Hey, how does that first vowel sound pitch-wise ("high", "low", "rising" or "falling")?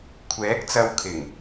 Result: rising